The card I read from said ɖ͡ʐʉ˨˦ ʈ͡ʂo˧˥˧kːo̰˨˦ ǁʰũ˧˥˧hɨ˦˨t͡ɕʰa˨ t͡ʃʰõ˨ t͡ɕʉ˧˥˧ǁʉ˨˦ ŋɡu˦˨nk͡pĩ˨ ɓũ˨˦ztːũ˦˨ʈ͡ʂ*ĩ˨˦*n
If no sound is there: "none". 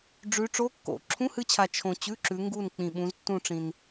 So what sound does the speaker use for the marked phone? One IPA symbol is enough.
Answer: ĩ˨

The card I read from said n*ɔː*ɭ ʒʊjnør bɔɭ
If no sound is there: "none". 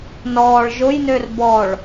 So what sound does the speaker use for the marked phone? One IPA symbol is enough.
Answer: ɔː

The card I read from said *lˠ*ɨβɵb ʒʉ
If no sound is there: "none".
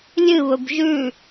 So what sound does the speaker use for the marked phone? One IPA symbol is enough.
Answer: lʲ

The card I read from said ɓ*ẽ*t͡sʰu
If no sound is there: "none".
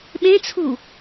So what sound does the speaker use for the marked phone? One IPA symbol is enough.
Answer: ẽ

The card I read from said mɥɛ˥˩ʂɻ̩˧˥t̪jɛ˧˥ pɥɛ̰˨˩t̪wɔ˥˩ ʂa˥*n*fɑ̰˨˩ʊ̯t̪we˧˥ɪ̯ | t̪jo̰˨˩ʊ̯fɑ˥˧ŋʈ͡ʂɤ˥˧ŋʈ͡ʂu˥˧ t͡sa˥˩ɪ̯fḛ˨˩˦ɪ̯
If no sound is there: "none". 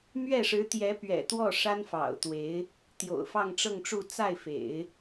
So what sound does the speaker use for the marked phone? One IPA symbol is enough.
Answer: n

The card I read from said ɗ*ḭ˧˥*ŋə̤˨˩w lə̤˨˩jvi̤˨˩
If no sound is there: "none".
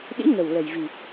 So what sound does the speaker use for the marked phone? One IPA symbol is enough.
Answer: ḭ˧˥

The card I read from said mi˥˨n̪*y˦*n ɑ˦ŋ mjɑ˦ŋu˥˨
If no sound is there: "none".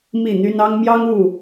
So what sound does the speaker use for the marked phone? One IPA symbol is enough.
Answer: y˦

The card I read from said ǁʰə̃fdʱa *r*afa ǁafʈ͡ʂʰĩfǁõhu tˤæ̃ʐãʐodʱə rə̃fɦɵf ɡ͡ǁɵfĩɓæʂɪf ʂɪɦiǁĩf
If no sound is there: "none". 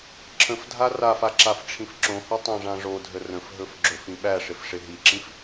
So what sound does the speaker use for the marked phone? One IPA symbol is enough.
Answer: r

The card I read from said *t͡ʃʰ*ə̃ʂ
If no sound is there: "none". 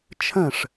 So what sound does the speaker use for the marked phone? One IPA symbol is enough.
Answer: t͡ʃʰ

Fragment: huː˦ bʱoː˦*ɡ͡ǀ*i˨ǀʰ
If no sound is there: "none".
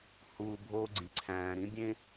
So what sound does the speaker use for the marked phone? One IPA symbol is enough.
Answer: ɡ͡ǀ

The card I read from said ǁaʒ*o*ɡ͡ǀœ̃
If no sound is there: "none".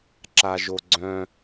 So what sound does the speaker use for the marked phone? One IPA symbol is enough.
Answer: o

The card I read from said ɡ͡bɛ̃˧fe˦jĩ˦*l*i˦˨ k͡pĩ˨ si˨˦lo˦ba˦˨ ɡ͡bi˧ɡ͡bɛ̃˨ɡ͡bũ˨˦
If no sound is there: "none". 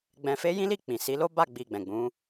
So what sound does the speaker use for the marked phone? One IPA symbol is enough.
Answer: l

